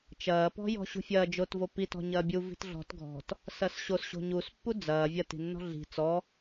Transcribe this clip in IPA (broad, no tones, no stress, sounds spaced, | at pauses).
t͡ʃ ɐː p ɔ̤ j ɔ̤ ɕ ṳ fʲ ɐː d͡ʒ o t v o p i t ɔ̤ ɲ ɐː bʲ u v i̤ t ɮ ɔ̤ t ɡʱ ɔ̤ t | s ɐ s ɕ o s ɕ o̤ ɲ u s pː u d͡z ɐː vʲ ɐ t i̤ nː ɔ̤ ɮ i̤ t͡s ɔ